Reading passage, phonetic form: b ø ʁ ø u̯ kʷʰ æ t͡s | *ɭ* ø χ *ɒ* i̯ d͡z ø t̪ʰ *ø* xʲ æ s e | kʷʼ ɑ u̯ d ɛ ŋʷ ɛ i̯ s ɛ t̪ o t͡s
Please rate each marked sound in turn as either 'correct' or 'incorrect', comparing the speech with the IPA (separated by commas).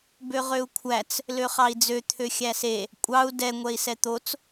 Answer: incorrect, incorrect, correct